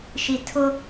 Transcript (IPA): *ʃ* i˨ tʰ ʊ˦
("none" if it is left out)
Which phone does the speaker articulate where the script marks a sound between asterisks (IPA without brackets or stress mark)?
ʃ